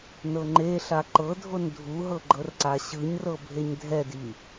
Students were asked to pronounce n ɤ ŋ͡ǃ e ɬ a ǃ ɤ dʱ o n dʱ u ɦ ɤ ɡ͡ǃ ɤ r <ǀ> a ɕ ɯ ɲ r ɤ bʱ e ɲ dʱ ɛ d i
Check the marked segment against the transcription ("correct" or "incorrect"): correct